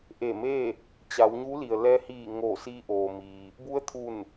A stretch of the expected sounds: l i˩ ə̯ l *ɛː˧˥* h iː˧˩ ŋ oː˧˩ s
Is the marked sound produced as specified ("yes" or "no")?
no